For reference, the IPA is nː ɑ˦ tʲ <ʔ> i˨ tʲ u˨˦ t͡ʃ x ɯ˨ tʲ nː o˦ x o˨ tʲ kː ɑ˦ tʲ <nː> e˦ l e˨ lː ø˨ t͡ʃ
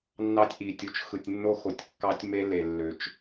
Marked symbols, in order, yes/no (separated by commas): yes, no